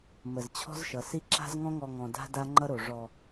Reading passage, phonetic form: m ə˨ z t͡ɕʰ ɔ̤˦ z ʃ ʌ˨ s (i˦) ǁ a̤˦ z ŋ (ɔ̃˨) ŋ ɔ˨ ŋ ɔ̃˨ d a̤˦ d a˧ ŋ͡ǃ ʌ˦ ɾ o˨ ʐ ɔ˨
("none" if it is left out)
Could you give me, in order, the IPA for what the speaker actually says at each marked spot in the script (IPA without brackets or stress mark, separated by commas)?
i˦, ɔ̃˧